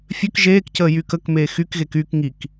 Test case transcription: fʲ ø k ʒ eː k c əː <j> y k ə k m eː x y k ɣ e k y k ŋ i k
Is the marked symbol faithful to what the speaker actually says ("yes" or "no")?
yes